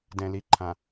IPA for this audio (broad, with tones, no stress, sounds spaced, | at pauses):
d ɛ̃˨ l i˨ ǃʰ ã˨